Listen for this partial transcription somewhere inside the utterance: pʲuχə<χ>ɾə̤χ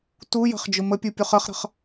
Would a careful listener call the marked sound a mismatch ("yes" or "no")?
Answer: no